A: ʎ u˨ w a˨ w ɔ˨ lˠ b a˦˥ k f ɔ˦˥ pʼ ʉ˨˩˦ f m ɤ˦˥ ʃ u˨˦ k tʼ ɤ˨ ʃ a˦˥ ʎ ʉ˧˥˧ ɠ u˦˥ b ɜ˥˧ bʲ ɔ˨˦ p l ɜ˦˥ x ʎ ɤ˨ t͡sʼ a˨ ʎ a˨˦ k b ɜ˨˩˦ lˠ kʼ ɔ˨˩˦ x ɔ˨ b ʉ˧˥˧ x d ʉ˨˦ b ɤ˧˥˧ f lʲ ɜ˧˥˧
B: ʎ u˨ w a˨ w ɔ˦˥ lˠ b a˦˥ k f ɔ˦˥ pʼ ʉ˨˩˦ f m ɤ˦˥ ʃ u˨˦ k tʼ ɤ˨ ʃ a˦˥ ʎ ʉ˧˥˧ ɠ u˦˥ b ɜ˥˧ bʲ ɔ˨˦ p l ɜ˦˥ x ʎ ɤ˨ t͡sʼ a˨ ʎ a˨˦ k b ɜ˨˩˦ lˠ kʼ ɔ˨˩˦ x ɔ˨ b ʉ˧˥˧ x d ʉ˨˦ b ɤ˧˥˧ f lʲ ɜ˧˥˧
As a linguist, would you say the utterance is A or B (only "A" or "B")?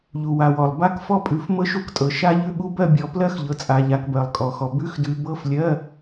A